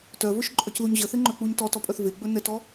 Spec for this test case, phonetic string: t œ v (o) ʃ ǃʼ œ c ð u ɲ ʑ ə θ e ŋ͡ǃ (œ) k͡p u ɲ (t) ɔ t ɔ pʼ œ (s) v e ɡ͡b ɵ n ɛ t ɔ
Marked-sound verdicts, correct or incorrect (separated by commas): incorrect, correct, correct, incorrect